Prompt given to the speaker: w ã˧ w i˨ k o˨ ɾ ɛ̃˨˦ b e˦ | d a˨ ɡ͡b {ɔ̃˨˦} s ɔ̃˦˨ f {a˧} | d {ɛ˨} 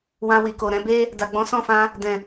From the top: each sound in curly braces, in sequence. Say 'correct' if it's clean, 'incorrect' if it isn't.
correct, incorrect, incorrect

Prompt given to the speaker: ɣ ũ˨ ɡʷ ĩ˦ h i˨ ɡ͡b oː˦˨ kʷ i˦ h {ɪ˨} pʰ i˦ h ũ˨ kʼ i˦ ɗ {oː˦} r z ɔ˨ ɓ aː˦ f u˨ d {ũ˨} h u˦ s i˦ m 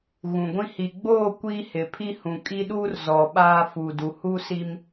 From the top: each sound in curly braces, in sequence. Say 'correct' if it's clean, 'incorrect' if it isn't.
correct, incorrect, incorrect

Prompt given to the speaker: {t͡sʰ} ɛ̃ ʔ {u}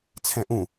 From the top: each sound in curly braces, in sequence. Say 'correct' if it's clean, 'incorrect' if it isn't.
correct, incorrect

